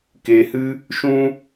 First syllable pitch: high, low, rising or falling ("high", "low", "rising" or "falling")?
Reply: low